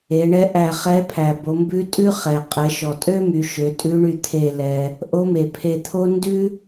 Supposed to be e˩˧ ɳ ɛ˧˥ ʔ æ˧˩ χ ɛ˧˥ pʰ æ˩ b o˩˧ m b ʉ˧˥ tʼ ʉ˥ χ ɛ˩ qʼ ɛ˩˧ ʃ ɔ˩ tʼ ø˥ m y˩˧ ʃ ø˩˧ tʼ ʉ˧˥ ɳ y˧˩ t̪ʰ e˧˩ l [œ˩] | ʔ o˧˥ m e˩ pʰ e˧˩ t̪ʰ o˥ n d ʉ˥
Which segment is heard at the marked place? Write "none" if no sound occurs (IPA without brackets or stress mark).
ɛ˩